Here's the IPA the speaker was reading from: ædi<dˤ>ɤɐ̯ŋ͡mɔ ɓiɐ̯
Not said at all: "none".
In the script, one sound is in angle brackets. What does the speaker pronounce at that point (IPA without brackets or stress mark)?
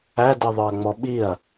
ðˤ